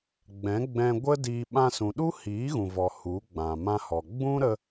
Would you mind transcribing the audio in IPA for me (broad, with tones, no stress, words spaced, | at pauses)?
ɡ͡bɛ̃˨˦ɡ͡bɛ̃˧ ɡʷə˦ diː˧ ɓã˧sũ˨ɗu˦ hiː˨˦ɣũ˨vɔ˨ hu˨˦ɡ͡bã˨ mã˧hɔ˨ ɡ͡bũ˦ɾə˧